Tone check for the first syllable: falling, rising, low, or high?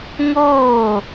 falling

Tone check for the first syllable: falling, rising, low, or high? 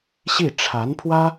falling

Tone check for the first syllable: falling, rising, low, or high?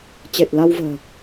low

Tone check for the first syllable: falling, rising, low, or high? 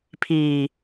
low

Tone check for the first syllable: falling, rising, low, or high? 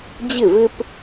falling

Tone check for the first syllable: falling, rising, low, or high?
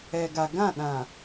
low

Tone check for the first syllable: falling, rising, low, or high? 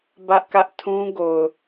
high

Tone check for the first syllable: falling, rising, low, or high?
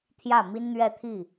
falling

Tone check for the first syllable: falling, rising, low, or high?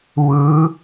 rising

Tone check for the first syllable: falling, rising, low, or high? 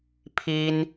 high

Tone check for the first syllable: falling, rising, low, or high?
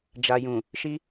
low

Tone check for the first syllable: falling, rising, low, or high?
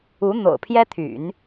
rising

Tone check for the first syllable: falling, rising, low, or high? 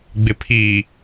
low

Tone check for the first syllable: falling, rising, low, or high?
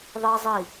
high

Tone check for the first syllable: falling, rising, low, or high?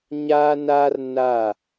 high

